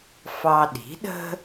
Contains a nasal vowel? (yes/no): no